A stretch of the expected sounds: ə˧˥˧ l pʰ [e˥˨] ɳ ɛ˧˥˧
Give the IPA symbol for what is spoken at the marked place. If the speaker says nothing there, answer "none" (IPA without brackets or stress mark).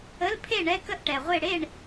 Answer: e˥˨